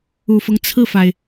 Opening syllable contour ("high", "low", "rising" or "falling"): low